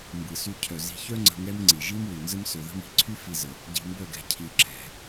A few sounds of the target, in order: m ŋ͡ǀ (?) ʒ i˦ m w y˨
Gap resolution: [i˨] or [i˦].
i˨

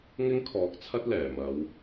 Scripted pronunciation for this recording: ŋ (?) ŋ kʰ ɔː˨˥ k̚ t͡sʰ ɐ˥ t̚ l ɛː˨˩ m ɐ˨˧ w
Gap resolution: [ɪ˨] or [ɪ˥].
ɪ˥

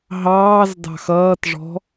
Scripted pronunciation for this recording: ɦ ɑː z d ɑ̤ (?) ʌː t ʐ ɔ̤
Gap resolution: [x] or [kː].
x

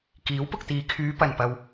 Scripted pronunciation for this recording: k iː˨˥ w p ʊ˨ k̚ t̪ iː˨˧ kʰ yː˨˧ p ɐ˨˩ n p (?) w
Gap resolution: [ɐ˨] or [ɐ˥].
ɐ˨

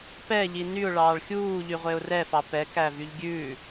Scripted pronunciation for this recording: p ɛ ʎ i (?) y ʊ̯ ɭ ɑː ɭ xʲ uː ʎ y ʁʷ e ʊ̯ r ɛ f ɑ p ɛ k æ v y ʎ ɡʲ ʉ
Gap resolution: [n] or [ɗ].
n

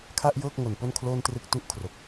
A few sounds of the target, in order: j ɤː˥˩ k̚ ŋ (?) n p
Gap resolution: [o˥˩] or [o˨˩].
o˨˩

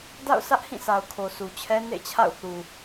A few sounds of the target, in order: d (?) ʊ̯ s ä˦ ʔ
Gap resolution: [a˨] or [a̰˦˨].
a̰˦˨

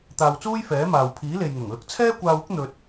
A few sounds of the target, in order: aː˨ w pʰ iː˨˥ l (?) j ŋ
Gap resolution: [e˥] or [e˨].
e˨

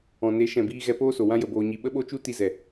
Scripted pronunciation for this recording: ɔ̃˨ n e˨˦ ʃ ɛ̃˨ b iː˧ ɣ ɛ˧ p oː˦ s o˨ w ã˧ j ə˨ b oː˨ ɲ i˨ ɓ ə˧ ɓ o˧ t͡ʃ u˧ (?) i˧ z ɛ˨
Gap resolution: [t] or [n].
t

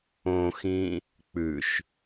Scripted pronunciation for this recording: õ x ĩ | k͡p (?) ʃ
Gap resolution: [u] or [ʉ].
ʉ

